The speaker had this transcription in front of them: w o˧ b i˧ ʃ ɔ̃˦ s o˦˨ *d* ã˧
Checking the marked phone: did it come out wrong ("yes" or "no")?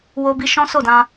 no